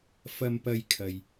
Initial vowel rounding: unrounded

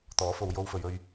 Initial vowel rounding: rounded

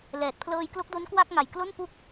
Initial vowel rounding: unrounded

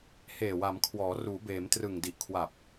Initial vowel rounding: unrounded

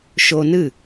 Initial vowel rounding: rounded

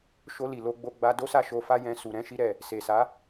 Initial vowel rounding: rounded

